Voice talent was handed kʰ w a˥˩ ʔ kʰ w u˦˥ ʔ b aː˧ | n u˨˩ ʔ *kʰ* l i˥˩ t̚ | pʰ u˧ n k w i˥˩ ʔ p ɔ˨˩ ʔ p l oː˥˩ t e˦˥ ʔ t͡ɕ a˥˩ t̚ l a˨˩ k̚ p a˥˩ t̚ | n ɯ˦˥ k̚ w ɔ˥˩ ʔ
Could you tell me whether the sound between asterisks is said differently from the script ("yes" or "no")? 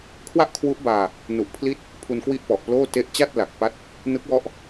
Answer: yes